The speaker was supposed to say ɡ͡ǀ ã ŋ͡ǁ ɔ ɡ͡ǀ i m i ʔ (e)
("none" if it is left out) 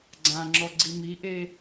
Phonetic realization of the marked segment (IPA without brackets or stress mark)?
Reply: e